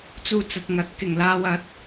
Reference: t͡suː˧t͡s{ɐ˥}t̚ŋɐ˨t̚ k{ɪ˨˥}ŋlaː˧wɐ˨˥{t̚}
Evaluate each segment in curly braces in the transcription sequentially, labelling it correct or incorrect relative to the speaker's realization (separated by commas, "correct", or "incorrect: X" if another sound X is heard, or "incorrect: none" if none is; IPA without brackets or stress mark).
incorrect: ɐ˨, incorrect: ɪ˨˩, correct